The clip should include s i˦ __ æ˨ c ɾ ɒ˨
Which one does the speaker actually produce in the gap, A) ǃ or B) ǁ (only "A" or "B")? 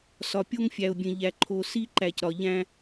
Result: A